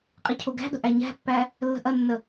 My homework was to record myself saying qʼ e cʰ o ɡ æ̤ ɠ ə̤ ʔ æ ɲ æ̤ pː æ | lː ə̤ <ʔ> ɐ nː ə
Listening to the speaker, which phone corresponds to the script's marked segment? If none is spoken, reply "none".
ʔ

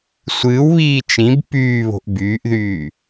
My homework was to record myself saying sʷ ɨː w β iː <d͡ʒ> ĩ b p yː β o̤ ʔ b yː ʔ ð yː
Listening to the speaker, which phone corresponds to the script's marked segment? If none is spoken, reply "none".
t͡ʃ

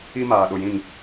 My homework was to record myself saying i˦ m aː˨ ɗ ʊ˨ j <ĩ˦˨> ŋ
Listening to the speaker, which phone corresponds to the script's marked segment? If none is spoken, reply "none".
ĩ˦˨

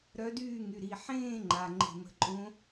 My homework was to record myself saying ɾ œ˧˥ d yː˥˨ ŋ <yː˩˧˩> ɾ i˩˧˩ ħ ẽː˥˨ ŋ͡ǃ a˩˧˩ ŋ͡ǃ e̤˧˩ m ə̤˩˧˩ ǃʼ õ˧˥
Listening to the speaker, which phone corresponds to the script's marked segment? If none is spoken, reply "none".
y˩˧˩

